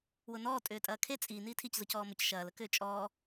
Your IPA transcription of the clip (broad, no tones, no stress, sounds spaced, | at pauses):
w ʊ n ɔː tʼ ʏː tʼ ɐː kʰ e t͡sʼ i n iː tʰ i c z ʊ c ɔː m ʊ c ʃ ɐː l ə k ʏː t͡ʃʼ ɔː